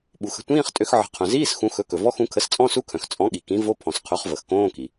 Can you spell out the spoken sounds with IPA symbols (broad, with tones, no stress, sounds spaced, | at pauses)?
ɓ u˩ x ə̤˩˥ tʷ ĩː˧˥˧ χ tʼ ø˩˥ x ʕ ə̤˩˥ qʰ œ̃˩ z iː˧˥˧ s x ũ˩˥ x ɵ˩˥ k ɵ˩ v ɔ˧˥˧ x ũ˩˥ kʰ ə˩˥ s t͡sʼ ɔ̃˧˥˧ s u˧˥˧ kʰ œ̃˩ x t͡sʼ ɔ̃˩˥ ɠ i˩ k ĩ˩˥ v o˧˥˧ pʰ ɔ̃˩ s qʰ ɵ˩˥ χ v ə˩ x k õː˧˥˧ k i˩